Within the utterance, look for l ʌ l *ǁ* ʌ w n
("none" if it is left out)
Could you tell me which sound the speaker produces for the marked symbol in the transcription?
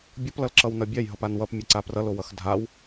ǁ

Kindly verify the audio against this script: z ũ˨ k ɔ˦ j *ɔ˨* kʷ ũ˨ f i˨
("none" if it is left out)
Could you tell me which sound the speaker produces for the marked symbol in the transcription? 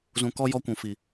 ɔ˦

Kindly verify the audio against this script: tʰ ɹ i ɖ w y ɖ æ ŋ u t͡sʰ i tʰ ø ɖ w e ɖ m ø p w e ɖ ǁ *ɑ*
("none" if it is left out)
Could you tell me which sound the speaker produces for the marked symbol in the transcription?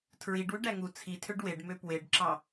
ɑ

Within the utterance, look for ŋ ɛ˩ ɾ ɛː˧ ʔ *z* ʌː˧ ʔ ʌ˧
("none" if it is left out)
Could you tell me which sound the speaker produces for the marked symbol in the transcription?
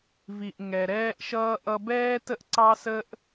ʃ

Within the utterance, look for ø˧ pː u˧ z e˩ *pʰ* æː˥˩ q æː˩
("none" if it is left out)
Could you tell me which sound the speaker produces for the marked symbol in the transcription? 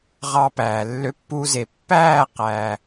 pː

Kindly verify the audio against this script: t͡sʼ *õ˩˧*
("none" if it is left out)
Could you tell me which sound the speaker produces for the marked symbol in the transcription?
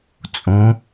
õ˩˧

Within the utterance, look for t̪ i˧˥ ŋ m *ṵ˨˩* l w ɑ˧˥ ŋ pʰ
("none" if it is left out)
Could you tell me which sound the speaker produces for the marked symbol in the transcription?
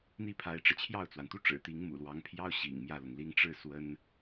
ṵ˨˩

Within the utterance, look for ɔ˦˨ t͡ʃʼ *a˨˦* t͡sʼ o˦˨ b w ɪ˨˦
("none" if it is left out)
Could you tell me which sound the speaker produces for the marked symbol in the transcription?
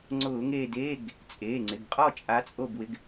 a˨˦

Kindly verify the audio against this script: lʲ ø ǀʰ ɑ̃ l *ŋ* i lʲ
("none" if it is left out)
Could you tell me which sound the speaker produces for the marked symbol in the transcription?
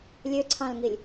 ŋ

